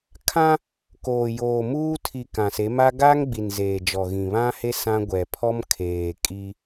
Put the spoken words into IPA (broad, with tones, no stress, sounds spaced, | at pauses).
kʰ ã˦ | k oː˨ j oː˨ m uː˦ tʰ i˨ k ã˨ s e˨˦ m a˦ ɡ a˦ ŋ ɡ͡b i˨ n z eː˨ d͡ʒ ɔ˨ ɣ ĩ˨ β ã˦ h e˦ s ã˦ ɡʷ ɛ˨ pʰ ɔ˦ m kʰ eː˨ kʼ i˦